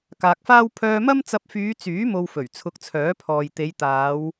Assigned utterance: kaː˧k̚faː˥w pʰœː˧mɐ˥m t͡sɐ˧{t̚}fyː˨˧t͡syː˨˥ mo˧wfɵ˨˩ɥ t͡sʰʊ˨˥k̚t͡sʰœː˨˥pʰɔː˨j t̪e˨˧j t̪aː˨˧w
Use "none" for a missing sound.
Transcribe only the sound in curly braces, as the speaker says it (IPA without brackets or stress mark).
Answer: p̚